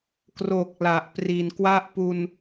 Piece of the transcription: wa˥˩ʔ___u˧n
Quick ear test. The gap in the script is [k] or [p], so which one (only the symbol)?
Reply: p